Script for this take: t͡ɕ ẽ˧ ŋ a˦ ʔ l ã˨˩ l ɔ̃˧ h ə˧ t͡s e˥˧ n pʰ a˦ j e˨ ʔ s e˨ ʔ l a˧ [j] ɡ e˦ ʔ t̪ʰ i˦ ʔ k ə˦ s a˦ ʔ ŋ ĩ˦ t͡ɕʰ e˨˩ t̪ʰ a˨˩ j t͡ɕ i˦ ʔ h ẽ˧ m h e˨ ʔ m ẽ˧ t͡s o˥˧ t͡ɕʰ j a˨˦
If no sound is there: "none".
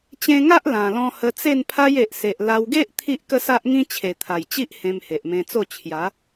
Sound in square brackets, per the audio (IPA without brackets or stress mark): w